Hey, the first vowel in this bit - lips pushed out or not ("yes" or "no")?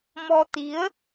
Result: yes